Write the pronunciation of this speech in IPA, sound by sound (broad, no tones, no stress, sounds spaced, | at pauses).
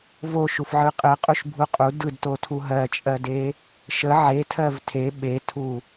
v o ʃ u f ʕ ɯ qʼ ɯ qʼ u ʃ bʱ u qʼ u d ɯ d t o tʰ u ɦ ɜ t͡ʃʼ ɜ d e | ʃ ə ʕ e tʰ ɜ v tʰ e ɓ e tʰ u